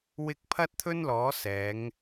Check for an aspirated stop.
present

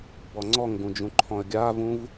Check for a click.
present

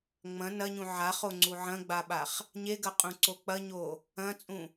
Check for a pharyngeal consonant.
present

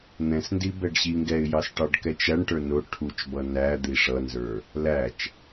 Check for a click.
absent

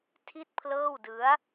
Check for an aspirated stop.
present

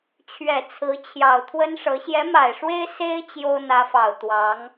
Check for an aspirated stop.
present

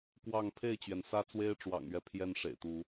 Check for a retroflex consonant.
present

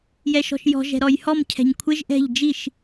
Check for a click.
absent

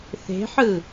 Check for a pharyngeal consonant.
present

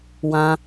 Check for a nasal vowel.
present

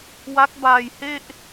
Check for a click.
absent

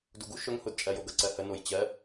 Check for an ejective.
present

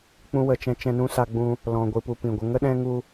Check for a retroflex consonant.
absent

